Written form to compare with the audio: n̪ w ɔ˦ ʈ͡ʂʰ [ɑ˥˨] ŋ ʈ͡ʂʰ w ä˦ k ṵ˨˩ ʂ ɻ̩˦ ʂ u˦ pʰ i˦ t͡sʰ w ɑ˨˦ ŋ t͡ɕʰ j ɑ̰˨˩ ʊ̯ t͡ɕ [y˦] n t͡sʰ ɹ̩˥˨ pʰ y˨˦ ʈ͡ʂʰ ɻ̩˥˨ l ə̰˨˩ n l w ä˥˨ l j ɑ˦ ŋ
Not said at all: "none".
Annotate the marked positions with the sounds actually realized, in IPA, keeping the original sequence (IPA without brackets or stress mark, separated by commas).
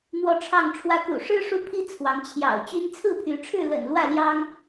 ɑ˥˨, y˦